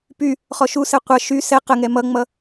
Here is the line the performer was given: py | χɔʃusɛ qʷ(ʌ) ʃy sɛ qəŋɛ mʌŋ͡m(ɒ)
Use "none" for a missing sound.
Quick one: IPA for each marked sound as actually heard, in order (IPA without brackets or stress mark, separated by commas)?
ʌ, ʌ